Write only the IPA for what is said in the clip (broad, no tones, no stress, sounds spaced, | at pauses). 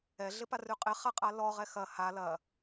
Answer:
ɛ ɮ ɪ p a r ʉ qʼ ɪ χ a qʼ a l ɔ ʁ ɛ x ɐ h a l ɐ